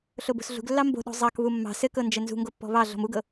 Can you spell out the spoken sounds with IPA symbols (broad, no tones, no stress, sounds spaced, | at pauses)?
ɬ o b o̤ s ɮ ṳ ɡ lː ɑ m b o̤ ɗ o̤ zˤ ɑ k β u mː ɑ̤ s ɘ k ɤ n d͡ʒ ɘ n z ṳ ŋ ɡ o pː ɔ̤ β ɑ ɮ ɔ̤ m u ɡ ɤ